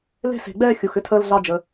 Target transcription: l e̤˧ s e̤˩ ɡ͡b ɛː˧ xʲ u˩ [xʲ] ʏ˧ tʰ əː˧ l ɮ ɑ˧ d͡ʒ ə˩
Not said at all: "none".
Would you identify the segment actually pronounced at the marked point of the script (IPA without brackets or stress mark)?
x